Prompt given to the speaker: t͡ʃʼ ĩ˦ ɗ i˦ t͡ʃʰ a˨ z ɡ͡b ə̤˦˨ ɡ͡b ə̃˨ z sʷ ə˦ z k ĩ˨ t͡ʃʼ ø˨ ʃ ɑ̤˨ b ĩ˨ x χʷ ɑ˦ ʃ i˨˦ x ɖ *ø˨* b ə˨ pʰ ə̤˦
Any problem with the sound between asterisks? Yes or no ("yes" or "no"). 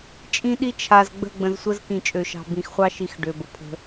no